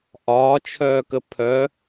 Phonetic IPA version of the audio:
ʔɒːt͡ʃʰœːkə pʰœ

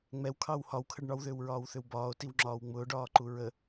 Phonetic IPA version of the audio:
ŋ͡mɛwkʰɑw hɒwkʰəɖ ɳɒwðʏːwɹɒːwθʏw bɒːo̯tiwŋ͡ǁɒːw ŋ͡mʊːɖɒːǃu ɹə

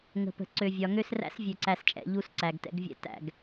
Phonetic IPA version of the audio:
ŋə̤˨pə̤˨ ǀø˨vʲɒ˨ ŋø˦sræ̰˦s vʲø˨ǀæ˨st͡ʃʼɛ̰˨ ʎu˦sǀæ˨ɡtɛ̰˦ɡvʲɛ̰˦ tæ̰˨ɡ

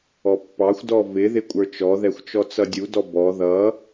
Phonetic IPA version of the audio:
ɔpːɑxʷdɔ vɪ ðɪkʷʼə˞t͡ʃɔðɛxʷ t͡ʃɔt͡sʌdʲudɔ bɔ ðʌ

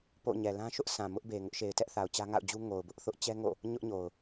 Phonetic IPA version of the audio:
po̰˦˨ ɲɛ˨lã˦ʃʊ˦ʔ sʰã˨ mʊ˦ʔ be˨ŋʊ˦ʔʃe˨ɪ̯ tɛ˦ʔθa˨ʊ̯ t͡ɕä˦ŋa̰˦˨ʊ̯d͡ʑu˦ ŋo˨ʊ̯bʊ˦ʔθʊ˦ʔ t͡ɕɛ˦ŋo̰˦˨ | ɲʊ˦ʔɲo˨ʊ̯

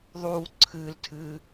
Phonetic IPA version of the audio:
ðˤuː ǀʰɨːltʰɨː

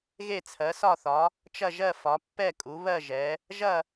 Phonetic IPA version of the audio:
ɣe˦˨t͡sʰɜ˩˧sɒ˦˨θɒ˩˧ | t͡ʃɐ˦˨ʒɜ˦˨fɒ˩˧ pːɛ˦˨kʼu˩˧ βɜ˦˨ʒɛ˩˧ | ʒɐ˦˨

